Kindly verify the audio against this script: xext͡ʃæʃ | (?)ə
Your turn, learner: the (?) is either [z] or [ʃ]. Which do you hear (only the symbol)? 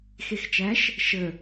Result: ʃ